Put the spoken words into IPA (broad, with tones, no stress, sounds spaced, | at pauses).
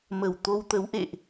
m ə˧˩ w t̪ o˧ w t̪ ə˨˦ w ʔ ḛ˧˨ ʔ